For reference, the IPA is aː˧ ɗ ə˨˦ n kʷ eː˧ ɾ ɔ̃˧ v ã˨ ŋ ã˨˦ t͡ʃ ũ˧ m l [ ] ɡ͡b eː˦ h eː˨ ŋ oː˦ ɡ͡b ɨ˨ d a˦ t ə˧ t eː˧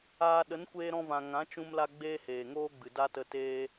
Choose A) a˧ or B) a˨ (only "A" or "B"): A